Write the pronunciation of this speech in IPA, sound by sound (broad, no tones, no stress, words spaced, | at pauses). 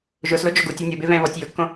ʒʊslod͡ʒoɡ utʲo nʲʊbevɛ̃ː vɔtʲ jʊkːõ